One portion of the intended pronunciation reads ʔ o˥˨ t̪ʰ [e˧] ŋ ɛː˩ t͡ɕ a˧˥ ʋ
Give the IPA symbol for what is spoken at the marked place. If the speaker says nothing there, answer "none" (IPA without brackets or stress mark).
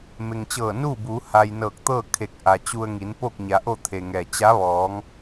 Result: e˩